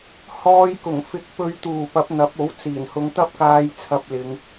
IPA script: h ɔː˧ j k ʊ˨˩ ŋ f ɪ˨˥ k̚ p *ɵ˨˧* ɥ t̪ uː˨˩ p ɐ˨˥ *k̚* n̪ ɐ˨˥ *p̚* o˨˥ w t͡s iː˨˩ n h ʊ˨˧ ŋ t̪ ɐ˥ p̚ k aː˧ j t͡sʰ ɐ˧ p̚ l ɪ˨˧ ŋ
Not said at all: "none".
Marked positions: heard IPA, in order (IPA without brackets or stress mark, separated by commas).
ɵ˨˧, p̚, p̚